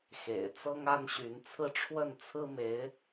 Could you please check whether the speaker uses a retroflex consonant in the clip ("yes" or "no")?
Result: yes